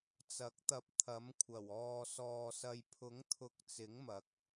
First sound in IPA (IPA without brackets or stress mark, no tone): t͡s